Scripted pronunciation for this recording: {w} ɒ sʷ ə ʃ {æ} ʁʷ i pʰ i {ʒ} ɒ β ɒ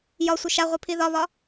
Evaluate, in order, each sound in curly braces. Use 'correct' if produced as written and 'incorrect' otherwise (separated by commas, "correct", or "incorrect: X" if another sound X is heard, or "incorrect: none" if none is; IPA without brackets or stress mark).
incorrect: j, incorrect: a, incorrect: ð